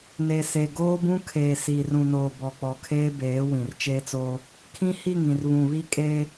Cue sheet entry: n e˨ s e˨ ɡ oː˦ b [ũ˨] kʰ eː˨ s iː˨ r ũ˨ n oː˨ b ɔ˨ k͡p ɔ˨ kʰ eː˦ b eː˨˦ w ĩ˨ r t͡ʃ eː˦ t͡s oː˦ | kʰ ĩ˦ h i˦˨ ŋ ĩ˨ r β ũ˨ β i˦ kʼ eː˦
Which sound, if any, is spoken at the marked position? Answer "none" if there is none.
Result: ũ˦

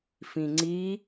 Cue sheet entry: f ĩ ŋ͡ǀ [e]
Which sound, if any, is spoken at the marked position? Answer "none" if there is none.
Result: i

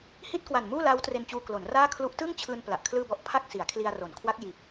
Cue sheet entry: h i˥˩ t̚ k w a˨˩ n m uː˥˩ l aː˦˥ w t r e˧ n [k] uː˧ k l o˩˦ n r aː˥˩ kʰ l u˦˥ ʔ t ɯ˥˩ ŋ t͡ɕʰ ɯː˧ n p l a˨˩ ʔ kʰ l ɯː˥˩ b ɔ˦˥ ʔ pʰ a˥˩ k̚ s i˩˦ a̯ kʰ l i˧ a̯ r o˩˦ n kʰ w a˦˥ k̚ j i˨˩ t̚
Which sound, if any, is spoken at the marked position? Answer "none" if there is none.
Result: t͡ɕ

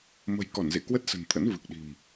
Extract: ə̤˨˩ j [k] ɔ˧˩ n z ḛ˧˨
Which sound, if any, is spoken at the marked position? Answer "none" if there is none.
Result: k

